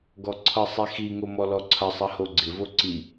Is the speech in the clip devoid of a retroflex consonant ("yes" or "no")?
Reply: yes